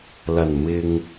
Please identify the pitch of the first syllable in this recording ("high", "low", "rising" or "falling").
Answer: low